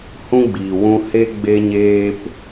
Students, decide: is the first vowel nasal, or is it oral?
nasal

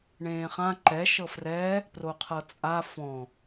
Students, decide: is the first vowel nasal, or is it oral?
nasal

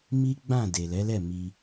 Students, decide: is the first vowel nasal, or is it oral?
oral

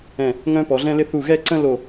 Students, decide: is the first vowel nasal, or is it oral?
nasal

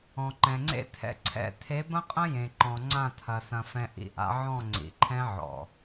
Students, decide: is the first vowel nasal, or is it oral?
nasal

